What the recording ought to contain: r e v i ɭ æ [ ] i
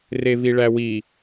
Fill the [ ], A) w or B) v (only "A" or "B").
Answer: A